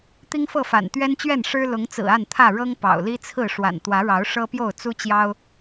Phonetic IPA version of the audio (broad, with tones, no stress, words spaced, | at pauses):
t̪i˦ŋfɤ˥˨fa̰˨˩n t̪ɥɛ˦nt͡ɕɥɛ˥˨nʂɻ̩˦ lʊ˨˦ŋt͡sɹ̩˨˩ a˥˨nt̪ʰä˥˨ɻɤ˦ŋ pɑ̰˨˩ʊ̯li˦t͡sʰɹ̩˥˨ ʂwa̰˨˩n t̪wä˨˦ɻɑ˨˦ʊ̯ ʂɤ˦pjo˥˨ʊ̯ t͡su˦t͡ɕjɑ˦ʊ̯